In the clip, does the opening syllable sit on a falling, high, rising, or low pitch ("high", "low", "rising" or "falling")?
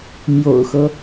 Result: low